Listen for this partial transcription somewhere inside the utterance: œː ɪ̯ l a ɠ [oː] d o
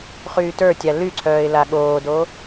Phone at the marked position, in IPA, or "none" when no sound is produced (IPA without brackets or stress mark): oː